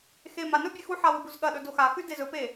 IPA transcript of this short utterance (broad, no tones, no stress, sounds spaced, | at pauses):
x e m a n ɵ bʲ e x u ħ a w ɨ b u z ɠ ɐ ɗ ɵ d o x a x ʉ d e z ɵ p e